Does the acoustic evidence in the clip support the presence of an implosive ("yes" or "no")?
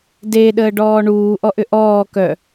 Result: yes